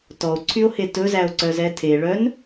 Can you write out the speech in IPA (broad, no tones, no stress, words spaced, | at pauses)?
tɔo̯ǀʰyo̯he tɵzæo̯ǀœzɛ tʰeɭœn